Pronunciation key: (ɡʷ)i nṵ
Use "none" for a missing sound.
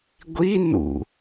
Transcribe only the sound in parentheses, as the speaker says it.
ɡʷ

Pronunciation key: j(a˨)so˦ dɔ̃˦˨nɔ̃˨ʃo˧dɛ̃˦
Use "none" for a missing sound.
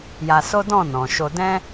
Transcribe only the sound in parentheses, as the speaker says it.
a˧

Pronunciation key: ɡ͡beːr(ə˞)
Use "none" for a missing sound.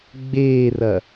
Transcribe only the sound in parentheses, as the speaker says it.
ɐ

